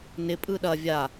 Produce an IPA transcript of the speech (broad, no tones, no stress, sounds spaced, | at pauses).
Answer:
n ɪ pʼ ɯ ɗ ɐ vʲ a